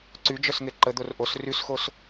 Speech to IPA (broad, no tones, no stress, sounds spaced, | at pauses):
ǀ y d͡ʒ œ s ŋ e ǃ ə d̪ o r ʔ o s r y s x o s